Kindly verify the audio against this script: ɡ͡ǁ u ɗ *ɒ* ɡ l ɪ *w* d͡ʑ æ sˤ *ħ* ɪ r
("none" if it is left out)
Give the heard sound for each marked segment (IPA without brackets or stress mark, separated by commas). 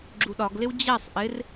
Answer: ɒ, w, ʔ